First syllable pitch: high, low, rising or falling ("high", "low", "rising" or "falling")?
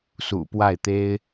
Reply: low